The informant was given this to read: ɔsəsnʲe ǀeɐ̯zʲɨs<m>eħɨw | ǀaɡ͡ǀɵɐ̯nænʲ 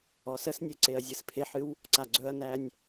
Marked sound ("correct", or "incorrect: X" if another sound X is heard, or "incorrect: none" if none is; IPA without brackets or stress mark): incorrect: pʰ